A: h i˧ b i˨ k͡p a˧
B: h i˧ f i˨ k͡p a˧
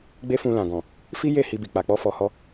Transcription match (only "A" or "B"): A